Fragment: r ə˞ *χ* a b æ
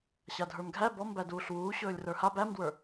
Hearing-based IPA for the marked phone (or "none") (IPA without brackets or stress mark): h